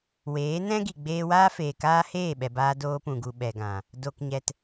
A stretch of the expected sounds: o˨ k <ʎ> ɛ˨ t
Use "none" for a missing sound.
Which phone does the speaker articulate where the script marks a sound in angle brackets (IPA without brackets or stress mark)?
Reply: ɲ